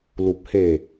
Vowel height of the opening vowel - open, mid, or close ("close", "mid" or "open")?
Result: close